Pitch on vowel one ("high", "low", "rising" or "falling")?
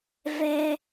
low